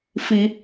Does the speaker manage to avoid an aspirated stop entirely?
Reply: yes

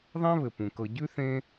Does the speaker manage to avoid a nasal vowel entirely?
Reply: no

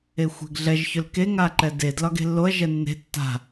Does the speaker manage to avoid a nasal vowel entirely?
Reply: yes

